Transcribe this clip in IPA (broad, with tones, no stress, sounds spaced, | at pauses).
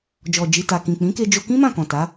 d͡ʒ ɔ˨ d͡ʒ i˨ t a˨ k ĩ˨ k͡p ĩ˨˦ k e˧ d͡ʒ o˧ k ĩ˦ m ã˦˨ k ɔ̃˨ t a˨˦